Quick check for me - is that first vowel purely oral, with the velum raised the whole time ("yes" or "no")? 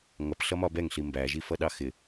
yes